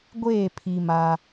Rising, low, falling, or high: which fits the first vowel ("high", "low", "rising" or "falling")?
falling